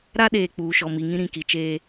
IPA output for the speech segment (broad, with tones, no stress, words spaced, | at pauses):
ɾa˦ɗeː˨ k͡puː˨ʃɔ˨mi˨ŋĩ˦ ɾĩ˨ki˨t͡ʃeː˦